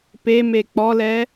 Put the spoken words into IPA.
p e m e k͡p ɔ l ɛ

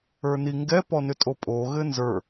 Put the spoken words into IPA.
ə˞ n i ŋ ɡ ɛ p ɔ n ʏ tʼ o pʼ o ɣ ɘ n z ə˞

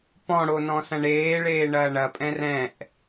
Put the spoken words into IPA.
p ɔ̃ ɽ o n ɔ̃ s ɐ̃ ɳ eː ɭ eː ɳ ɐː ɳ ɐ pʼ ɛ̃ r ɛ̃ ʔ

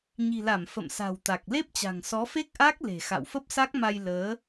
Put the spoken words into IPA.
ɲ i̤˨˩ l a˧˩ m f ə̰˧˨ m s a̤˨˩ w t̪ a˨˩ k̚ l e˦˥ p̚ t͡ɕ a̤˨˩ ŋ s ɔ˨˦ f e˦˥ k̚ ʔ aː˦˥ k̚ l e̤˨˩ x a̰˧˨ w f ə˦˥ p̚ s a˦˥ k̚ m a˧ j l əː˨˦

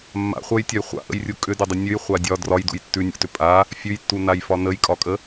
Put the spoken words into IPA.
mː a̰ χʷ ɤ j tʲ ɒ j χʷ a̰ ʔ ə̰ j rʲ u kʼ ʏ d ə dˤ ə nʲ ʉ j χʷ a dʲ ɒ d r ɒ j d ṵ j tː ʉ nʲ ṵ t ʏ pʼ a | fʲ ʉ j tː u n a j f ɒ n ə j kʼ ɒ kʼ ə

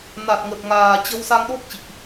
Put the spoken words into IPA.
n a˨˩ t̚ ŋ ə˨˩ t̚ ŋ aː˨˩ t͡ɕ ə˧ w s a˧ ŋ ɗ o˦˥ k̚ t͡ɕ ḭ˧˨ ʔ

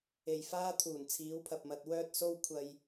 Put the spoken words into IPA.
e˨ j f aː˥ t̪ʰ uː˨˩ n t͡sʰ iː˨˥ w pʰ ɐ˨ p̚ m ɐ˧ t̚ w œː˥ t̚ s o˥ w kʷʰ ɐ˧ j

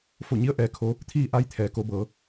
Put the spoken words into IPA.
f o˧˩ ɲ i˧˥ ə̯ ʔ ɛː˧˥ kʰ o˧˥ | t̪ʰ iː˥˨ ʔ a˧ j t̪ʰ ɛː˩˧ k o˩˧ b ɤː˩˧

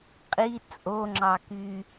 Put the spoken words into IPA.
qʼ i t͡sʼ o ŋ͡ǁ ɑ k y

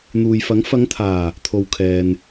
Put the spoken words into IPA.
n̪ uː˨ j f ɐ˨˥ ŋ f ɐ˨˧ ŋ t̪ʰ aː˨˩ | t̪ʰ o˨ w kʰ ɛː˨ n

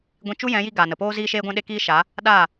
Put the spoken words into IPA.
ɡʷ ĩ˧ t͡ʃ u˦ j ɛ̃˨˦ j i˧ ɡ a˨ n ə˨ p oː˦ z iː˦ ʃ eː˦ ɡʷ ɛ̃˦ ɗ e˦ k iː˦ ʃ a˨˦ | ɗ a˦˨

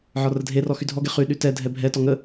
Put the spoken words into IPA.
ʕ ɒ r ə dʱ e r ɔ x y dʱ ɔ ɡ e χ y ɗ y t ɛ dʱ ɛ bʱ ɛ t ɔ ŋ ə

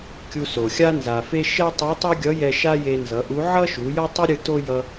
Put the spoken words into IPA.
kʲ u˧ s o˩ xʲ a˥ n z a˩ f e˥ ʃ ɛ˥ tˤ u˧˥ tˤ o˥ ɡʲ ʌ˧˥ j ɛ˧ ʃ a˥ j e˧ n z ʌ˩˧ ʔ u˧˥ ʕ ʌ˥ ʃ u˩˧ j ʌ˥ tˤ u˥ ɾʲ ɯ˧ t o˥ j ʌ˧

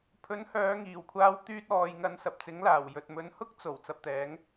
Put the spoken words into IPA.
pʰ ɵ˨˥ n h œː˨˧ ŋ iː˨˩ w kʷʰ aː˧ w t̪ yː˧ t̚ ɔː˨ j ŋ ɐ˨˧ n s ɐ˨ p̚ t͡s ɪ˨˥ ŋ l aː˨˩ w j ɵ˨ t̚ m ɵ˧ n h ʊ˥ k̚ t͡s o˨˩ w t͡s ɐ˨ p̚ t̪ ɛː˨˧ ŋ

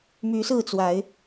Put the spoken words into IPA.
m y˨˦ s ɹ̩˥˨ t͡s w a˨˦ ɪ̯

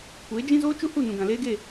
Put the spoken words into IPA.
kʷ eː˨˦ d͡ʒ ĩ˦ z oː˦ t͡ʃ u˦ h u˦˨ n ũ˨ ɡ ã˨ l eː˦ ɡ e˦˨

